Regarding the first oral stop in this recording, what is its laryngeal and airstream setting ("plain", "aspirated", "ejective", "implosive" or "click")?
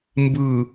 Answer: plain